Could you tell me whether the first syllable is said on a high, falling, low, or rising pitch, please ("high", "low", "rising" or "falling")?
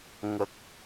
low